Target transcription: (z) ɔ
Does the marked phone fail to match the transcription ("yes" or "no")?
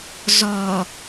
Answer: no